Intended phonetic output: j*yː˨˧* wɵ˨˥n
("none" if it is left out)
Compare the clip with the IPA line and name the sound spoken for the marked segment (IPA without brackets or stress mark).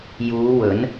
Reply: uː˨˧